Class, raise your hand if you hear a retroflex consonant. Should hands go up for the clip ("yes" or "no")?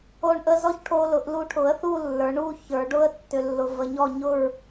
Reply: yes